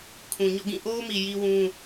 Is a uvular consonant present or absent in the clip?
absent